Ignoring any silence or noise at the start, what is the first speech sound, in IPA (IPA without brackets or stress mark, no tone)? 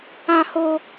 ã